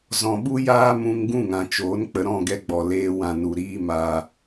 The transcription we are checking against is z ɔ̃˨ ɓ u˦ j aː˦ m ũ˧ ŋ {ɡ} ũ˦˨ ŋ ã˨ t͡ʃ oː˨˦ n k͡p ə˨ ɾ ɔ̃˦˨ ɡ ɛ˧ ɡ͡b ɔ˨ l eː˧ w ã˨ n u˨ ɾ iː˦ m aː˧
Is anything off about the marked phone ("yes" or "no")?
no